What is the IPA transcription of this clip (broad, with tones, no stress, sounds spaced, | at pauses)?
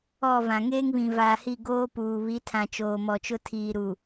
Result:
ɔ˦˨ v ã˨ ŋ eː˦ ŋ β ĩ˨ v aː˨ h i˦˨ ɡ oː˦ p uː˨ β i˨˦ tʰ ã˨ t͡ʃ oː˨ m ɔ˨ t͡ʃ ʊ˦ tʰ iː˨ ɾ u˨